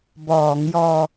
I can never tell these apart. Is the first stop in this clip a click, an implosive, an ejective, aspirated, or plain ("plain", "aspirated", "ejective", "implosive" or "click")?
plain